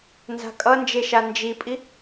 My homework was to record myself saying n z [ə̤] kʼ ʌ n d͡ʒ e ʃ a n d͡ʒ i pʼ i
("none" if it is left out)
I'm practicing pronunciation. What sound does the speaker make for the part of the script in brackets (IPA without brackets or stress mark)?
a̤